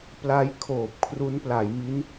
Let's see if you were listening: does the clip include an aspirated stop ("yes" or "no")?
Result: yes